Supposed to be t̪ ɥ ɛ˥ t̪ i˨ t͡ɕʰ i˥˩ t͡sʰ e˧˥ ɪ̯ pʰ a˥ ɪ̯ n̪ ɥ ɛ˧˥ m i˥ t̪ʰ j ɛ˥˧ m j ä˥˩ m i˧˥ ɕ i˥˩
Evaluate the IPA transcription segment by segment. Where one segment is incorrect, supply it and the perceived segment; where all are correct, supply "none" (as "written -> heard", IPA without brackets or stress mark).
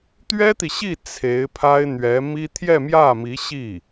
t͡ɕʰ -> ɕ